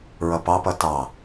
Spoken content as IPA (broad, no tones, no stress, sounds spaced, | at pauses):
ɹ ʌ p ɑ p ʌ t ɑ